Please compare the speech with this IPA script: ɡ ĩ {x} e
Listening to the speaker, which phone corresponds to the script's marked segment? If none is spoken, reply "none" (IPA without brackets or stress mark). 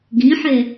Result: ħ